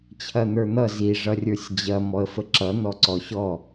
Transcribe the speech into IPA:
t͡ɕʰ ɐ n̪ ə˞ n̪ ʌ z i ʐ ʌ rʲ ə˞ sʲ d͡ʑ ɐ m ɔ ə̯ f ə ǁ ʌ n̪ ɔ ǀ ɔ ɕ ɔ

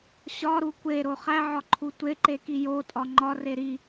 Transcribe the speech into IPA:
ɕ ɒ ɾ u kʷ e ɾ o χ æ ʕ ɒ ǃʰ u tʷ e ǃ e k i j o tʼ ɒ ŋ͡ǃ ɒ r e ɾ i

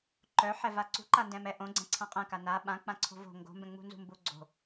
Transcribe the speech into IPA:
ǃ œ ħ ɛ v a ǀ ṳ ǃ a n d ɛ̃ m ɛ ʔ õ ɡ͡ǀ ɛ̃ ǀʰ ã qʼ ɛ̃ k a n a ɓ ã k͡p ã ǀʰ o̤ v o̤ ŋ ɡ o̤ m b ɛ̃ ŋ͡m ṳ n z ṳ m b u ɡ͡ǀ o̤

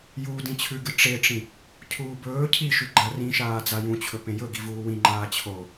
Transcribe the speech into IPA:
j uː d ĩ t͡ɕʰ ʉ ɡ ɨ ʈ͡ʂ e ʈ͡ʂ ĩ | cʰ uː b ɵː cʰ i ʃ ʉ ɡ͡ǃ a r ĩ ʃ aː d͡z a j ũ t͡ɕʰ ɵ p ẽ j ɵ ɡ i v uː w ĩ ŋ͡ǃ aː t͡ɕʰ o

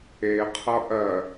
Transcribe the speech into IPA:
e qʰ ʌ ʔ ɜ

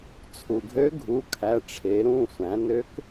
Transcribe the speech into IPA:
t͡sʰ u˩ ɡʱ ø˧˥ ɡʱ u˩˧˩ kʰ æ˩˧˩ ʈ͡ʂʰ e˩˧ ɾ ũ˩˧˩ sʷ æ̃˩˧ n ø˧˥ k

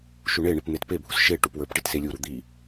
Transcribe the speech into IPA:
ʃ u ɳ e ɳ i p n̪ e t p e bʱ u s ʃ e ʈ u p w ə˞ p ʈ i t s e lʲ u ɾ u d̪ i

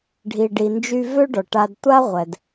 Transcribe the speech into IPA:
ɖʱ i˩ ɖ i˩ n d͡ʒ y˧ v ø˥ ɖ ɔ˩ ʈ a˧ d tʷ a˥ ʁʷ ɛ˩ d

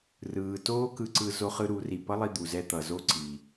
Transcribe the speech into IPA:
r ɯː˨ t oː˦ k ɯ˧ ǀ ɯ˧ z o˧ χ ɯ˧ ɾ u˨˦ r i˨ p ʌ˦ lˠ i˧ d̪ u˨ z ɛ˧ t̪ ʌ˨ z o˦ ǀ i˧

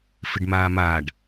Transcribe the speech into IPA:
f ɪ ɖ m aː m aː ɖ

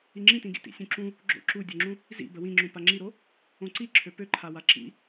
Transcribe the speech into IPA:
i ŋ͡ǁ ĩ t ĩ ɡ ḭ t ḭ sʲ ũ ǁ ũ | ɡ͡ǁ o̰ ǁ u dʲ o ŋ͡ǁ ũ | z ḭ b ə w ĩ ŋ͡ǁ ũ p a ŋ͡ǁ i ɾ o | õ ǀ i ǁʰ ø p ø ǃʰ a w a ǁ ḭ

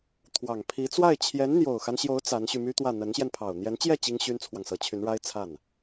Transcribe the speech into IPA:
t̪ʰ w ɑ˨˩ ŋ pʰ i˧˥ t͡s w a˥˩ ɪ̯ t͡ɕʰ j ɛ˧˥ n n̪ j o˨˩ ʊ̯ x a˦ n ɕ j o˧˥ ʊ̯ t͡s a˧˥ n ɕ y˧ m y˥ t̪ w ä˥˩ n̪ ə˧˥ n ɕ j ɛ˧ n pʰ ɑ˨˩ ʊ̯ n̪ j ɛ˧˥ n t͡ɕ j ɛ˥˩ t͡ɕ i˥ ŋ ɕ y˥ n t͡sʰ w ɑ˨ ŋ s ɤ˧˥ t͡ɕʰ y˧˥ n ɻ a˥ ɪ̯ t͡sʰ a˥˩ n

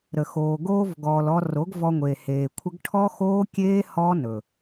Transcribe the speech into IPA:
ɾ ə˨ x oː˨ ɡ oː˧ v ɡ ɔː˨ l ɔ˧ r o˨˦ ɡ v ɔ˧ ŋʷ e˨ h eː˨ kʷʰ ə˦ ɡ ʈʰ ɔ˦ x oː˦ kʲ eː˦ h ɔː˦ n ɵ˨

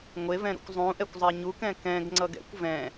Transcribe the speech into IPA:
ŋʷ e v ɛ̃ ɾ ṵ kʷ zˤ ũ ʔ ɛ kʷ zˤ e ɲ u k ɛ̃ k ɛ̃ ɡ ŋ͡ǀ ʌ ɡ ɛ̰ kʷ v ɛ̃

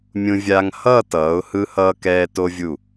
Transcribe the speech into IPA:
mʲ ũ˧ vʲ a˧ ŋ h ʌː˥˧ t ʌː˩˧ ʊ̯ h ɯ˧ h ʌː˧ k ɛː˧ t o˧ vʲ u˧˩

